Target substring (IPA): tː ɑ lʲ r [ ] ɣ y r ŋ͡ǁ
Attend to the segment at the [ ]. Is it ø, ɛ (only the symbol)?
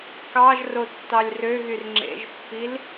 ø